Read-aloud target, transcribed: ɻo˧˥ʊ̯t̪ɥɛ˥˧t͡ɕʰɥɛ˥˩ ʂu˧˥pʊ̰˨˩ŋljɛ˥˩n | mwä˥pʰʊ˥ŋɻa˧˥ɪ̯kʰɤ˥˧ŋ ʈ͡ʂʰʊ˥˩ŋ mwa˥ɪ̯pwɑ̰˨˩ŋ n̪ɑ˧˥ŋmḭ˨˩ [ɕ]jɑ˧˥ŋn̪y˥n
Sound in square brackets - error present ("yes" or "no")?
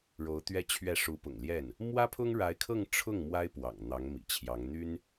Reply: yes